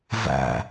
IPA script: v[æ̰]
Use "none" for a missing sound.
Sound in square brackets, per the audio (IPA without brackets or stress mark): æ̰